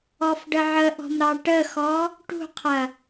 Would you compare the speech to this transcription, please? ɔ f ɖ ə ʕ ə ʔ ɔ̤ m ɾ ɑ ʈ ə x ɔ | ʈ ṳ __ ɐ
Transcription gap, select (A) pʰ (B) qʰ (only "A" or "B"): B